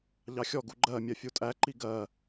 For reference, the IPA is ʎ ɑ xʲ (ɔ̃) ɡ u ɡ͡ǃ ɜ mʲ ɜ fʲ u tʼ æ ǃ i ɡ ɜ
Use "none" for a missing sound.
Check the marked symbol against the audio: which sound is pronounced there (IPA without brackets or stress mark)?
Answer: ɔ